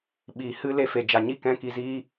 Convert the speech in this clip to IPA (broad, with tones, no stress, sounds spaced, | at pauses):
ɓ iː˨ h ɨ˦ l e˧ f e˨ d͡ʒ a˨ ɲ i˦ k ɛ̃˦ k i˧ z iː˦